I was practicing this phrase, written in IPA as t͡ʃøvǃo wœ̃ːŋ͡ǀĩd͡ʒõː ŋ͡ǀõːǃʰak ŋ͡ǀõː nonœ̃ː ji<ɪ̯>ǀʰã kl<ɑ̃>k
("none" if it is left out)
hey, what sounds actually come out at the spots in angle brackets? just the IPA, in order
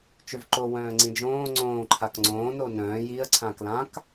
ə̯, ã

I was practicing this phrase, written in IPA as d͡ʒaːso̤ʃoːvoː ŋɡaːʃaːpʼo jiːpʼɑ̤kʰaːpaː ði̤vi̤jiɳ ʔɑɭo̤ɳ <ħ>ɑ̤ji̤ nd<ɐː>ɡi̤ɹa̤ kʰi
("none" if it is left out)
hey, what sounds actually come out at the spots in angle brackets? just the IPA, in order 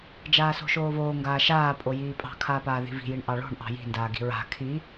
ʔ, aː

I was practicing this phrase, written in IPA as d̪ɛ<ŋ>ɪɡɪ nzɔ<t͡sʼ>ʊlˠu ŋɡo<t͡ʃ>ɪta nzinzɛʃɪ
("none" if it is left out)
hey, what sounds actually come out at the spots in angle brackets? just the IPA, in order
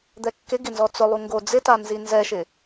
kː, t͡s, d͡z

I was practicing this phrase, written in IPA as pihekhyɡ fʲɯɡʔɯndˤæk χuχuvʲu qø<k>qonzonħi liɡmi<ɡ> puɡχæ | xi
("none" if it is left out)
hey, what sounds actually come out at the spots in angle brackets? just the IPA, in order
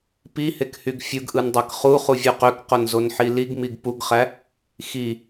k, ɡ

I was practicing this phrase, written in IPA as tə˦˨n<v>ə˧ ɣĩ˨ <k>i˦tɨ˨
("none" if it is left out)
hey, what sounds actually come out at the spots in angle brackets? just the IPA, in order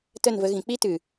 v, k͡p

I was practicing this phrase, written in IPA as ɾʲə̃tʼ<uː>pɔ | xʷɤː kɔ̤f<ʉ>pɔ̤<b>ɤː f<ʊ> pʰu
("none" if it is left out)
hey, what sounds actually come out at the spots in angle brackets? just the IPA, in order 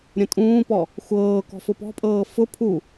ũː, ʊ, pʼ, ʊ

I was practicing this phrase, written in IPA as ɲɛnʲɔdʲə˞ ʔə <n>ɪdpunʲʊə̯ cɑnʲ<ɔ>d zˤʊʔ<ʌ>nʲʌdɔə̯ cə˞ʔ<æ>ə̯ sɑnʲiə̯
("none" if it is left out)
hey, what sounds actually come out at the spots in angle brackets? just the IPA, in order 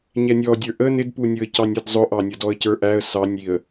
n, ʌ, ɑ, æ

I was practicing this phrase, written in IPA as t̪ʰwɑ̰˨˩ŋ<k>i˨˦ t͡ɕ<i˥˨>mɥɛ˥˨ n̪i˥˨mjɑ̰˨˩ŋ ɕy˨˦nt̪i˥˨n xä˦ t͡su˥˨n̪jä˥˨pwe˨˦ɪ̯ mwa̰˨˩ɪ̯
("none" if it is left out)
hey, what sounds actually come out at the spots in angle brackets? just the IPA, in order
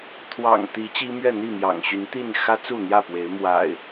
t̪, i˦

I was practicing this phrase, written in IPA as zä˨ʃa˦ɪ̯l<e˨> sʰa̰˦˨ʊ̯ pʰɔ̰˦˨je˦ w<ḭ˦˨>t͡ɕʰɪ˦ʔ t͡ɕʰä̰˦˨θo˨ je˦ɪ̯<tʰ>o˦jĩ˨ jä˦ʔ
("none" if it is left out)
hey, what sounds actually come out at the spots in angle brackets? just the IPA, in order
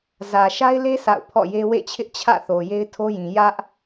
e˦, ḛ˦˨, tʰ

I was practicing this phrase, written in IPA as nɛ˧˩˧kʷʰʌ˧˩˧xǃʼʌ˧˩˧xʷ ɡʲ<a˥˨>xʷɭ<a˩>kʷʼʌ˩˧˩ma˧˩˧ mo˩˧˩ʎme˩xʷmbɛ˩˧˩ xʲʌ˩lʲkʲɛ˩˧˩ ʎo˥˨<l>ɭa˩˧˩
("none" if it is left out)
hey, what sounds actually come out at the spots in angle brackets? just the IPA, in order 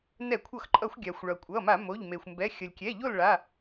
a˩, ʌ˩, l

